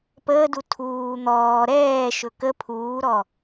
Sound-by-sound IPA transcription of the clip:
p əː d u tʰ uː n̪ ɔː ɾ ɛː ʃ ɵ k ə pʰ uː ɾ ɔ

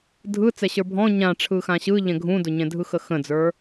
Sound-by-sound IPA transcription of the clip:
dʱ ɯ t͡s ɛ ɕ ə˞ bʱ ɔ̃ ɲ ã ʈ͡ʂʰ ɯ x ã ɕ ɯ ʎ ɛ̃ ɡʱ ũ d ʊ ɲ ɛ̃ dʱ ɯ x ə x ə̃ d͡z ə˞

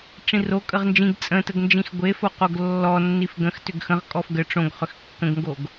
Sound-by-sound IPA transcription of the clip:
ʈ͡ʂ ĩ r o kʼ ə ʁ n d͡ʒ ĩ ɡ t͡sʼ ə̃ t ə ɡ n d͡ʒ ĩ x ɡʷ e f o q o ɡ lː ɔ nː i f ɡ ə̃ x t ʏ ɡ x ə̃ ʁ kʼ ɔ f ɡ ə ʈ͡ʂ õ ɡ χ ʏ x kː ə̃ ɡ ŋ ɡ o ɡ

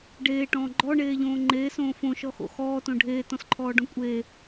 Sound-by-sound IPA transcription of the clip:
ɖ eː ʈ ɔ̃ː ɡ͡ǃ ɔ ɳ eː ʎ õː ŋ͡ǃ eː s õː f õ ʃ ɔ x o̰ x ɔː t õ ɖʱ eː t ɔ̃ s ǃʰ ɔː ɖ ɔ̃ kʷʼ e

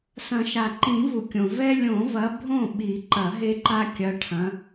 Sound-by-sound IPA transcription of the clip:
s ɐ̃˨˩˦ ʃ a˩ ǃ ĩ˨˩˦ v u˩ kʲ õ˩ v ɛ˦ lʲ õ˨˩˦ v ɐ˨˦ bʱ õ˥˩ ɓ i˨˩˦ ǃ ɐ˨˩˦ ɦ e˦ ǃ a˦ kʲ ɐ˨˦ ʈʰ ɐ̃˨˦

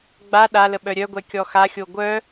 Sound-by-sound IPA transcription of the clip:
ɡ͡b a ɗ a l ə ɓ œ ɾʲ œ ɡʷ ɛ kʲ ɔ x a xʲ o ɡʷ œ

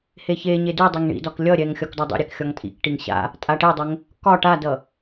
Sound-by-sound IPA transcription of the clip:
h e ç e ɲ e d ʉ dˤ e ŋ ɳ ḭ d ɒ k lʲ ʌ ɾʲ ɛ ŋ xʲ ɒ k d ɔ dˤ ḭ ɾʲ ɛ k xʲ ɒ ŋ tʼ ḭ k ʈ i ŋ ɕ a̰ | tʼ a ʈ e dˤ ə ŋ | k ɒ ʈ a d ʌ

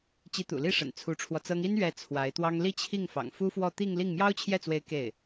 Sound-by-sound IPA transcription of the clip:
t͡ɕ i˧˥ t̪ ṵ˨˩ l i˥˩ ʂ ə̰˨˩ n t͡sʰ u˧˥ ʈ͡ʂʰ w ɔ˧ t͡s ɤ˥ ŋ i˥ n ɥ ɛ˧˥ t͡sʰ w a˧˥ ɪ̯ t̪ w ɑ˥ ŋ l i˥˧ t͡ɕʰ i˥˩ ŋ f ɑ̰˨˩ ŋ f u˥ f w ɔ˥˧ t̪ i˥˧ ŋ l i˥˩ ŋ m j ɑ˥ ʊ̯ t͡ɕʰ j ɛ˥˩ t͡s w e˧˥ ɪ̯ k e˥˩ ɪ̯

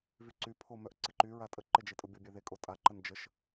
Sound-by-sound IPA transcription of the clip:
v y ǀ y pʰ o m œ ʔ ǀ ɪ ǃ y ɹ a tʼ ə ǃ ɪ d͡ʒ e tʼ ʊ bʲ ʊ bʲ e ð e kʼ o tʼ a ǃ ə n d͡ʒ ə ʃ

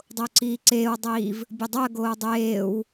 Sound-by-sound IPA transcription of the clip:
dˤ o ǀ iː ǀ eː w dˤ iː v | bʲ o dˤ u ə̯ ɡ oː dˤ eː w

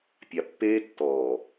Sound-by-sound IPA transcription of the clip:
pʲ a˨ pː eː˦ tː ɔː˨

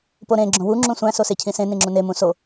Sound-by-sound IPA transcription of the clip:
p o ɾ ẽ ɡ͡ǁ õ w u ŋ͡ǁ ũ sʷ æ̃ s o s e cʰ ĩ s ẽ n ĩ ŋ͡ǁ ũ n e m ũ s o

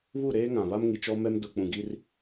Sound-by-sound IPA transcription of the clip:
β u˦˨ ɾ eː˦ ŋ ã˨ β a˦ m ŋ i˨ t͡ʃ ɔ˦ m ɛ˦ m d ʊ˨ k͡p ũ˨ ɡ i˦ r

